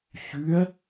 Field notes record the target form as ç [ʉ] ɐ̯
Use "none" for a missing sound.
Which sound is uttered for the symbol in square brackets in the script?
ʉ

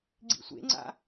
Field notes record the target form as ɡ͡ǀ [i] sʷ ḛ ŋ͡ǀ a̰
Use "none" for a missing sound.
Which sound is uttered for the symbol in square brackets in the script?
ḭ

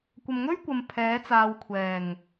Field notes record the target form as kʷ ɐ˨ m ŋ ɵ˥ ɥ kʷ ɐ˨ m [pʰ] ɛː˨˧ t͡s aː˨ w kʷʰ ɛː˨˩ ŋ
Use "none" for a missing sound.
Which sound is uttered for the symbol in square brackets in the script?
pʰ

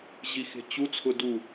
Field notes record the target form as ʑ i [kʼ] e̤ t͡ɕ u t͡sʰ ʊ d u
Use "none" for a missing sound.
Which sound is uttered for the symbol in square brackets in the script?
x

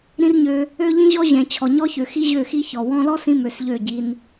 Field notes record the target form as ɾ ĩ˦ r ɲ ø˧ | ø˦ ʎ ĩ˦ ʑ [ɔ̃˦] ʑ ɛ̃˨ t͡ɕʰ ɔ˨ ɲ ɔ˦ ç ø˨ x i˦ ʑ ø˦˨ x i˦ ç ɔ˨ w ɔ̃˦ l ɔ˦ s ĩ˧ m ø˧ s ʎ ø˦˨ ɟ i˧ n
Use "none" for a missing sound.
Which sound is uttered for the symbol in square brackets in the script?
ɔ˦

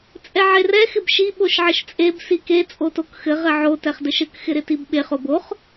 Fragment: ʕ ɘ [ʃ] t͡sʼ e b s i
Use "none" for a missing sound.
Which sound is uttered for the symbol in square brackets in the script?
ʃ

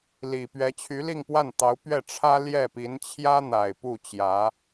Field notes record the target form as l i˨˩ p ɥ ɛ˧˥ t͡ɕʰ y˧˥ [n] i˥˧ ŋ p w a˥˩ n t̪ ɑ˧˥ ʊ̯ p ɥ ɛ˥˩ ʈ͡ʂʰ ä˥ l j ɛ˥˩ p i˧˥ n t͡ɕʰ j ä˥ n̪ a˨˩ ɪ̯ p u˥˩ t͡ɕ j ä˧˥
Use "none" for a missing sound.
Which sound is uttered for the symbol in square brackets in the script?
l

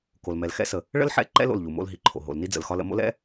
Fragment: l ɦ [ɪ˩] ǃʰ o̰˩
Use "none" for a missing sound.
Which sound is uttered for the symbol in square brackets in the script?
i˩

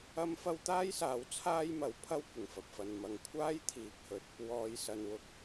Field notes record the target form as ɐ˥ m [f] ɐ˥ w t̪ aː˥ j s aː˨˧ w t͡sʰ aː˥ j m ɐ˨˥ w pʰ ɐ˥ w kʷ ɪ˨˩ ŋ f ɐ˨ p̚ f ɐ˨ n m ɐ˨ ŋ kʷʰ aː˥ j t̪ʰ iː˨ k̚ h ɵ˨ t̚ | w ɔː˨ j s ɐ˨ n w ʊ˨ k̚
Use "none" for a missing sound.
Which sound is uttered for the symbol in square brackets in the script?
f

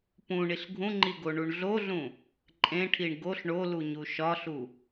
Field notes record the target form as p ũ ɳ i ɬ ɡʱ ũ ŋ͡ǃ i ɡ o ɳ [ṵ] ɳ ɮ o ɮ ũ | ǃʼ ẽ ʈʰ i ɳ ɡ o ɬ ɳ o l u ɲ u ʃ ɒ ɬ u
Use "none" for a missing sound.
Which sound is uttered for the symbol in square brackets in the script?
u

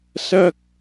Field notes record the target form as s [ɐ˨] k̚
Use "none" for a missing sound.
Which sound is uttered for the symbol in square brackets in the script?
ɐ˥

